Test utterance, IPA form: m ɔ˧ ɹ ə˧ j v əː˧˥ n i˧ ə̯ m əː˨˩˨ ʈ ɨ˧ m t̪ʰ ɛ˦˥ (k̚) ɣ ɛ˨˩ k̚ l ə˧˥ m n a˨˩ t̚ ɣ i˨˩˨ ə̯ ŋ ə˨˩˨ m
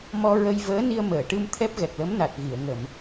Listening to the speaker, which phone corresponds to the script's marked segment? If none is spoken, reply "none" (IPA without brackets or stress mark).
p̚